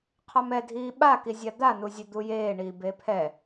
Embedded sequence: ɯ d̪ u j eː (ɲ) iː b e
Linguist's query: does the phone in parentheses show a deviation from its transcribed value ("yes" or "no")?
yes